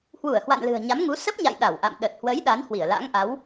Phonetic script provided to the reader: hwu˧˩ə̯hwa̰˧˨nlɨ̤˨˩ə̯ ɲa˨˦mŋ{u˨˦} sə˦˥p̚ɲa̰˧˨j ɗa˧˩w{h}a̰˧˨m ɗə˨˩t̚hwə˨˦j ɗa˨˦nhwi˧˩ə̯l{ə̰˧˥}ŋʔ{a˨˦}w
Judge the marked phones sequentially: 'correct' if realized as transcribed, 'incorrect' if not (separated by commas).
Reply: correct, incorrect, incorrect, correct